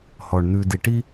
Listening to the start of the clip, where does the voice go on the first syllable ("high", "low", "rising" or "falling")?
low